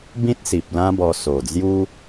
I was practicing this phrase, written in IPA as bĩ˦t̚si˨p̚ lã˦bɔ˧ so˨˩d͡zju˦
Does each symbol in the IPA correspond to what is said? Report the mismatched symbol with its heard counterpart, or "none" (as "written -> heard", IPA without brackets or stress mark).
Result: none